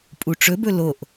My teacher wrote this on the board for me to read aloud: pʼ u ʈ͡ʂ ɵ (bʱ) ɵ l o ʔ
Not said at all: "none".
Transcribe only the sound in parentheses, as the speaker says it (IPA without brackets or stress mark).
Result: b